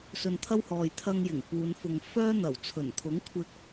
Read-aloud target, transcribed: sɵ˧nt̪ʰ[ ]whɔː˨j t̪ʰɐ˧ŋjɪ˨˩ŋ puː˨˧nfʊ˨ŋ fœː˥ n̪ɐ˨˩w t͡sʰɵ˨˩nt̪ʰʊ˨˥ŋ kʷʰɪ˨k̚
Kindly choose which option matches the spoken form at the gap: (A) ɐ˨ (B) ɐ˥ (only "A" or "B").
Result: B